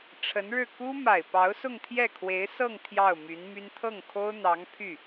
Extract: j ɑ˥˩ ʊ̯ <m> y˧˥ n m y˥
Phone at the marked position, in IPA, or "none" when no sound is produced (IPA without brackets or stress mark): m